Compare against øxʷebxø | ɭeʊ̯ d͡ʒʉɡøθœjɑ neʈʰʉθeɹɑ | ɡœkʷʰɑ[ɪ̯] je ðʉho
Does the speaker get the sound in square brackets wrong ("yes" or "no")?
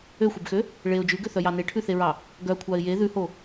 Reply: no